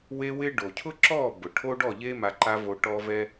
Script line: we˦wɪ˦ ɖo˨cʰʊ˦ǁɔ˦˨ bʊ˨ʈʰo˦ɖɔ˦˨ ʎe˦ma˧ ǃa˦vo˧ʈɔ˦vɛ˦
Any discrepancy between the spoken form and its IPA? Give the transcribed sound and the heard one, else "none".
none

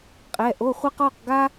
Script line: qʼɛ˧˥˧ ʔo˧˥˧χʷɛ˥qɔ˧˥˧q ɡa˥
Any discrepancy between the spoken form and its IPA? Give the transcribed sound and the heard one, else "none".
none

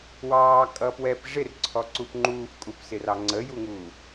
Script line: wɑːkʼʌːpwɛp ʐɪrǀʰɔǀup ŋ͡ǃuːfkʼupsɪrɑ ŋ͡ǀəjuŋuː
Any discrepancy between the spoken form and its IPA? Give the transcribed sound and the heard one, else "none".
none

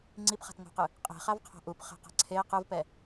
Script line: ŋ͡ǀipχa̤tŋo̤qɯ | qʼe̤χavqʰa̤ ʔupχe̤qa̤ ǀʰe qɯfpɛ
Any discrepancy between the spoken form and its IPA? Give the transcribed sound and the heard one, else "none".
f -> v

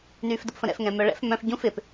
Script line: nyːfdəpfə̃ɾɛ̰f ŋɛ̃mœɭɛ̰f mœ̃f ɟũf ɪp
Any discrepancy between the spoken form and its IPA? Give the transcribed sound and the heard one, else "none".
none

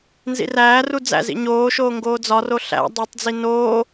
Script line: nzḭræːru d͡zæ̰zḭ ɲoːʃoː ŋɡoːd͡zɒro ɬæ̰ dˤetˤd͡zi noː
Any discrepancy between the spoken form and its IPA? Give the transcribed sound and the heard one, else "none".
none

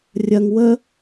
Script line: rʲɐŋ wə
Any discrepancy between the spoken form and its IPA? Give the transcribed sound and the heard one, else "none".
none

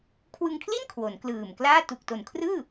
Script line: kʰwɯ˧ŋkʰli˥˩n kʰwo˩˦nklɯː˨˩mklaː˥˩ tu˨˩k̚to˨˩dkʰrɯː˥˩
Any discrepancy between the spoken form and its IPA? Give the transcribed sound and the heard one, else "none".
d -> n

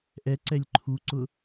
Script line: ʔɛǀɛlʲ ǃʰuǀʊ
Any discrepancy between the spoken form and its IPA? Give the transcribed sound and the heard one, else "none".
none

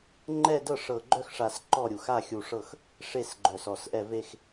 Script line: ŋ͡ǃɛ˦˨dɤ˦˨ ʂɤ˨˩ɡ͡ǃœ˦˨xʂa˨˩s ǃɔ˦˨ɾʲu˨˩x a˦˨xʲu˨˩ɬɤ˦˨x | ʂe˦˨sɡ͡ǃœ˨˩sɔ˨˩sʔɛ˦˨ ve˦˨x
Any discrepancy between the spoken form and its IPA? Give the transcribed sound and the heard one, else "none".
ɬ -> ʂ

